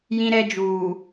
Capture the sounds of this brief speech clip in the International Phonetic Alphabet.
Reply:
jĩ˦ɾɛ˦d͡ʒuː˨

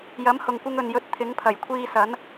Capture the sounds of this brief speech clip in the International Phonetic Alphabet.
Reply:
jɐ˨˥mhʊ˨ŋkʷɪ˧ŋ ɵ˨njɵ˧t̚ t̪ʰɪ˨˥ŋpʰɐ˨˩j kʷʰiː˧sɐ˨˥n

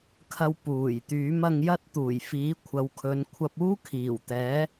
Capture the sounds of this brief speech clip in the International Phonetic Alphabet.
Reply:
kʰɐ˧w puː˨˩j t̪yː˨˥mɐ˧ŋjɐ˥t̚ t̪uː˨˩jfiː˨˥kʷʰɐ˨˧wkʰɵ˨˧n kʷʰɐ˧p̚uː˥kʰiː˨˩wt̪ɛː˨˥

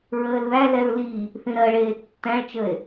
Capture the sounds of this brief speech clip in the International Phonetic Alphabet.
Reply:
ɹəːlðælɛɹ li | θĩɾɜɭeː tːæ̃ɭt͡ʃəe̯

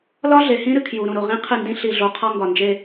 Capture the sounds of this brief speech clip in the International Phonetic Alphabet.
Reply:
lɒ˦ɮe˨hĩ˦ ɾɨ˨kʰju˨ɾũ˨ɾo˨ ʁĩ˦qʰɨ˦˨ndĩ˦ ɬi˨ɮo˨ qʰɒ˦ŋɡɒ˨nd͡ʒe˦

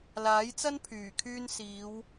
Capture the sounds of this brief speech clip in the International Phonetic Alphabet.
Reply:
laː˨˥jt͡sɐ˥npʰyː˨˩kʰyː˧n siː˨˧w

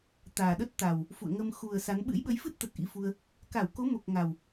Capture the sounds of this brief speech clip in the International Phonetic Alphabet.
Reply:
t̪aː˨˩ɗə˦˥t̚t̪a˨˩w | fṵ˧˨ə̯ŋə˧m xu˨˩ə̯ sa˨˦n ɓɨ̰˧˥jɓə˨˦jfɨ˦˥t̚t̪ə˨˩t̚ ʔḭ˧˥fu˧ə̯ | ka˧˩wko˨˦mo˨˩k̚ ŋa˨˩w

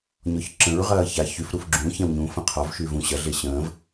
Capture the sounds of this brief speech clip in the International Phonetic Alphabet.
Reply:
ɲɔçǁə̃ɹʁɐː ça çyfɾuf ɡ͡ǁũ çɛ̃wɲũfə̃ qʰɔvʃyːv ũ ɕɐɮe ɕə̃ːv

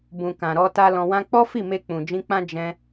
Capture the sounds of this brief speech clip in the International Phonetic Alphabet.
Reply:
bũ˨kã˨ɾɔ˧ta˧ lɔ̃˨wã˧k͡pɔ˦fi˦˨ me˧k͡pũ˨ d͡ʒĩ˧k͡pã˦ d͡ʒɛ̃˧

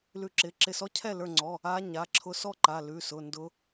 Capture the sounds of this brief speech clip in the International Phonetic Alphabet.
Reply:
lʉ˧˩ǁɪ˩˧˩ǁɪ˧˩ sɔ˧˥cʰɛ˥˩lə˞˧˩ŋ͡ǀɔ˩˧˩ | a˧˥ɲa˩˧˩ǁʰʊ˧˥ sɔ˥˩ǃa˩˧˩lʉ˩˧˩sʊ˩˧˩ ndʊ˧˥

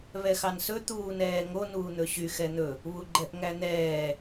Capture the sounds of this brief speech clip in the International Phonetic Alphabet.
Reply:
βɛxɑnsɵ t̪uːnɛːŋo nuːn̪ɵɕy xɛn̪ɵ | βuɡ͡ǃɛʔŋæn̪ɛː

